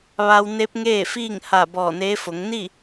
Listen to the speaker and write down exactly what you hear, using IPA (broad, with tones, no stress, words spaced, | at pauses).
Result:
ʋa˧wne˧˥p̚ŋeː˥˨ fiː˥˨ŋha˧˩ bɔː˧˩neː˧˥fo˩˧ŋ ni˥˨